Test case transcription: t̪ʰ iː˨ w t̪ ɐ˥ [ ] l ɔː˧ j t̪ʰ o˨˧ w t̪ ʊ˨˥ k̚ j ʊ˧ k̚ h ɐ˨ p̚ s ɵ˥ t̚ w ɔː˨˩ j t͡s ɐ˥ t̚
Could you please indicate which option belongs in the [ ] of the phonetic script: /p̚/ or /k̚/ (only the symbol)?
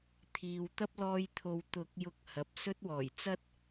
p̚